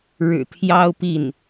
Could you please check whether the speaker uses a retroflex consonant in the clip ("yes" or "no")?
yes